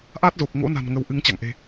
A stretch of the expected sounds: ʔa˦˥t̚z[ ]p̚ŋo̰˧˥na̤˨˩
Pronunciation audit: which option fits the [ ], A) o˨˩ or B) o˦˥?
A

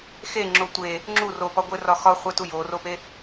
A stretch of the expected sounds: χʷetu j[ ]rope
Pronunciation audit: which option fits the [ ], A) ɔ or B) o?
B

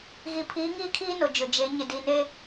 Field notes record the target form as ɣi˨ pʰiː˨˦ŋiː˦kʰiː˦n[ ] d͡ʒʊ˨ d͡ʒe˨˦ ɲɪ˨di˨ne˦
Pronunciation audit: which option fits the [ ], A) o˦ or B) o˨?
B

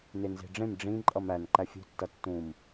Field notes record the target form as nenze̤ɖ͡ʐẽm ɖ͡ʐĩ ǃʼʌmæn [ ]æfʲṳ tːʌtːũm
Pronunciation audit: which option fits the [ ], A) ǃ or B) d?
A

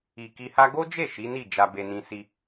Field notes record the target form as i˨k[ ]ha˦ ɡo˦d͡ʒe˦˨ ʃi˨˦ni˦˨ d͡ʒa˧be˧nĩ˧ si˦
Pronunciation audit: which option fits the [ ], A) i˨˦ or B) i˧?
B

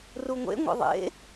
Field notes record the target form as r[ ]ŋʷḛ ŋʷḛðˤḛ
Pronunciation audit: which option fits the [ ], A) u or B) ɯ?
A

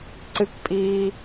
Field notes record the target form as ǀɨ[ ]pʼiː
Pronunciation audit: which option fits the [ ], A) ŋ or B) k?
B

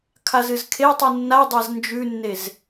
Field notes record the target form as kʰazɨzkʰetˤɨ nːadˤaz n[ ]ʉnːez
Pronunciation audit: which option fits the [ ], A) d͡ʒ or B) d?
A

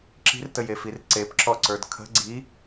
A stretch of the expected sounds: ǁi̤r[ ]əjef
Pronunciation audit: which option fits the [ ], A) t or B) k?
A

